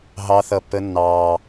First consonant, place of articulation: glottal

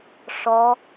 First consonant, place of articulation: retroflex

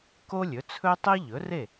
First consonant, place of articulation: velar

